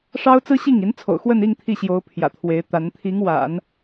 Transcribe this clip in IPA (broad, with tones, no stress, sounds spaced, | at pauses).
ʂ ɑ˥ ʊ̯ t͡s ɹ̩˥ ɕ i˥˩ ŋ i˧˥ n t͡sʰ o̰˨˩ ʊ̯ x w ə˥˧ n i˥˧ ŋ t̪ʰ i˥˩ ɕ j o˧˥ ʊ̯ pʰ j ä̰˨˩ t̪ʰ w e˧˥ ɪ̯ t̪ a˧˥ n t̪ʰ i˧˥ ŋ w a̰˨˩˦ n